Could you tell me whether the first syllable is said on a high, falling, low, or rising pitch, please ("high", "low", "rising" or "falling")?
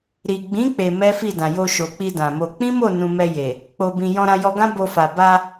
low